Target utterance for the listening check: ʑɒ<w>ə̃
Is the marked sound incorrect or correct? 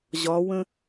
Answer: correct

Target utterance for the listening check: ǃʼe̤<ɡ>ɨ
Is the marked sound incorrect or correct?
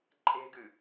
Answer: correct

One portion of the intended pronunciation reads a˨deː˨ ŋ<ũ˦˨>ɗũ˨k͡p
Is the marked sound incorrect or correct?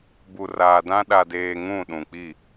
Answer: correct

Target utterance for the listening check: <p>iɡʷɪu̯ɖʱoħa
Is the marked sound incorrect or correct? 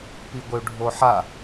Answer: correct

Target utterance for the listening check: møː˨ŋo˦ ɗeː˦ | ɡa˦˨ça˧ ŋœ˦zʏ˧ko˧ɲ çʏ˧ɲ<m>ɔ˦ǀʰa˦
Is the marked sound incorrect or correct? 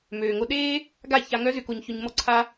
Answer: correct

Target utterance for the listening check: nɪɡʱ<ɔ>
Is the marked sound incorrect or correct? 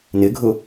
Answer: incorrect: ʊ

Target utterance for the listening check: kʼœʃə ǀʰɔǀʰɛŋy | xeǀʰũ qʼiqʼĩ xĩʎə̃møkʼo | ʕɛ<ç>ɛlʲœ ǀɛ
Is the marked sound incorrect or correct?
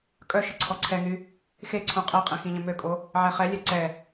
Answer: incorrect: χ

